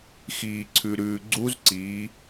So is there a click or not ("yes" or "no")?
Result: yes